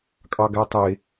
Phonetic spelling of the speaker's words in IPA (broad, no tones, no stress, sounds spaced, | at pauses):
kʼ ɑ ɡ æ tˤ e